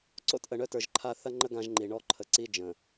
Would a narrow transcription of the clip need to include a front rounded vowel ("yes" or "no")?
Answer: yes